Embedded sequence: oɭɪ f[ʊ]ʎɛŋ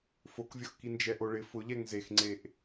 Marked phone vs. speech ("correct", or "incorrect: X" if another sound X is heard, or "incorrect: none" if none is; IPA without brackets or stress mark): correct